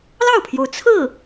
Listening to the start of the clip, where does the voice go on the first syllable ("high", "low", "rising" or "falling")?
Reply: falling